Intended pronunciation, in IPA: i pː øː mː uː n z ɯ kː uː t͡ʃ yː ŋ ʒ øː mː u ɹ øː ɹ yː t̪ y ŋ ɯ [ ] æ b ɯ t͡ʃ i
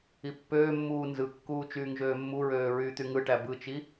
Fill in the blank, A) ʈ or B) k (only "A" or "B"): A